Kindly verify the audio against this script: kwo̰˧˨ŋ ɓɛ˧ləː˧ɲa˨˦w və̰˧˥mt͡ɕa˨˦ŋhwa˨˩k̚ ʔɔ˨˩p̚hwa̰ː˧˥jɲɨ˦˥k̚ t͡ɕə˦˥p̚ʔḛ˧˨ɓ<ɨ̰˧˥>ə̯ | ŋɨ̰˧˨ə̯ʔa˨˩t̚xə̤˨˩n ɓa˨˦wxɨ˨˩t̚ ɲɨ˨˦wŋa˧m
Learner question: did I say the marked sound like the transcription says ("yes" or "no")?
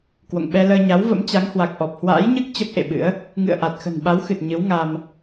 yes